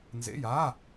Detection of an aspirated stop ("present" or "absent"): absent